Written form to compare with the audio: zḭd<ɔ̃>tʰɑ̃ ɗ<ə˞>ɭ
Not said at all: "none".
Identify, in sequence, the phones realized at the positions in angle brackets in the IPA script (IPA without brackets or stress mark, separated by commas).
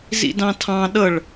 ɑ̃, ʌ